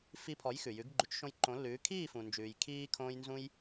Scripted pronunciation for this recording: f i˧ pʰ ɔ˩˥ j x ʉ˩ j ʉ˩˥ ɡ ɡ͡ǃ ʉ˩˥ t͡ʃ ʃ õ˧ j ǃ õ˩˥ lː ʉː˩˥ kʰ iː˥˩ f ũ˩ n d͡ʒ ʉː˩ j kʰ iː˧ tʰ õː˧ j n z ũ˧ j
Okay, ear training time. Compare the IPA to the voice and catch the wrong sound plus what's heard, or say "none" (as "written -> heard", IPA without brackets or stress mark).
tʰ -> kʰ